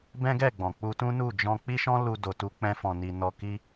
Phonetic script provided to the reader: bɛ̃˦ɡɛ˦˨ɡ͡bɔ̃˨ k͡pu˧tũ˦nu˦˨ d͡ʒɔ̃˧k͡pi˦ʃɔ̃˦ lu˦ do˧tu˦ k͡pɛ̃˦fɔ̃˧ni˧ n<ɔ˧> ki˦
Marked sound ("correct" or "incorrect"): correct